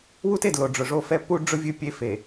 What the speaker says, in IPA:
w u˦ t e˨ d l o˨ ɖ͡ʐ ʊ˨ ʐ o˦˨ f ɛ˦ p u˦ ɖ͡ʐ ʊ˦ vʲ ɨ˦˨ pʲ e˦ f e˨

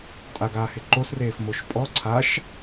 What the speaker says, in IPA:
tʼ a ɡ aː h ɪ ǃ o s r eː f m o ʃ pʼ ɔ ǀʰ a ʃ

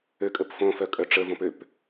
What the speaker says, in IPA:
ø kʼ ə p f õ f œ kʼ œ ʈ͡ʂ ə v õ p ø p

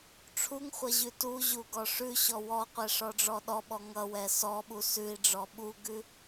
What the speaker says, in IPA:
ʈ͡ʂʰ u ŋ χʷ ʌ ʑ ʉ t u ʑ u ɡ ɔ ʂ ʉ ɕ ɔ w ɔ qʷ ɛ ʂ ɔ ɖ͡ʐ ɔ ɗ ɔ ɓ ɔ ŋ ʌ w ɛ s ɔ ɓ u s ʉ i̯ ɖ͡ʐ ɔ ɓ u ɡ ʉ

